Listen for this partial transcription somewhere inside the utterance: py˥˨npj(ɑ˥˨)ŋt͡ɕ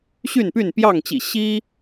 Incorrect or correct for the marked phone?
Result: correct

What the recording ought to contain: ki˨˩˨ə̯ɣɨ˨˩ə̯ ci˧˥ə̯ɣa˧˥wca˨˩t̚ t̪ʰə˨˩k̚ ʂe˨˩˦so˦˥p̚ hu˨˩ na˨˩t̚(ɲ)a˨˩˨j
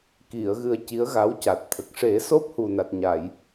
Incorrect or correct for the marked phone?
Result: correct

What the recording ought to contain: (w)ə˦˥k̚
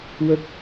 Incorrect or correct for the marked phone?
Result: correct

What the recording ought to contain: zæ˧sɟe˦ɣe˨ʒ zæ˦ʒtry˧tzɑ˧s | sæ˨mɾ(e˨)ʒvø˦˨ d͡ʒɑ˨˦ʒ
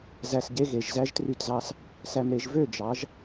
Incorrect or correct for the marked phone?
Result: correct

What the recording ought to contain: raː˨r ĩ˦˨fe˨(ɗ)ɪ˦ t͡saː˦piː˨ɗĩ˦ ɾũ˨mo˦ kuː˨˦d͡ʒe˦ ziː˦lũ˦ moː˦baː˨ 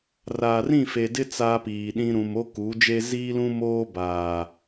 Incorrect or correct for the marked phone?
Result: incorrect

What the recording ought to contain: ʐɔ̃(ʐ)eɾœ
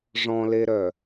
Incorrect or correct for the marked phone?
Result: incorrect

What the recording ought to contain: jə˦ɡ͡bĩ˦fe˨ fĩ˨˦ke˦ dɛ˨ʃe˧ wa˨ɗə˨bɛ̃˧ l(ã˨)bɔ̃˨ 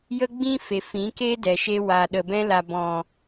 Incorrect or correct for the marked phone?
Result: incorrect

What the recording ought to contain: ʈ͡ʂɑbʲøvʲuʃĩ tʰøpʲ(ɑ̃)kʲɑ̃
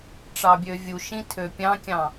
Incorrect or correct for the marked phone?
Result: correct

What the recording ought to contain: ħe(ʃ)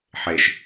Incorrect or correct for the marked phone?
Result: correct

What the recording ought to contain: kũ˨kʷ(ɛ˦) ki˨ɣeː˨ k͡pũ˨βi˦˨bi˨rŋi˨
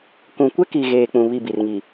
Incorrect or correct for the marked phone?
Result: correct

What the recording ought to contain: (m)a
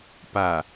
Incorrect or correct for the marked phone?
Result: incorrect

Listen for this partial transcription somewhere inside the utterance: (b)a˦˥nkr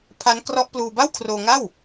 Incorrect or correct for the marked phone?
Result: incorrect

